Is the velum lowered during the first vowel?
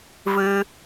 no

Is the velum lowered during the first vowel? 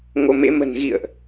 no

